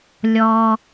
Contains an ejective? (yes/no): no